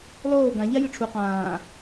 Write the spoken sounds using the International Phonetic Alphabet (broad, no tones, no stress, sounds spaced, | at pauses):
lˠ oː ɡ ã ʎ a j ɨ ʈ͡ʂʰ u q ãː